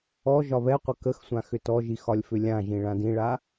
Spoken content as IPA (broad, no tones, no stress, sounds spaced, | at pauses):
ɔ ʒ ɒ β ɛ qʷ ə k ə x sʷ ã x ʏ t ɔ ʒ i x ɒ lʲ f ʏ lʲ ã ʒ ĩ ɭ ã d ĩ ɭ a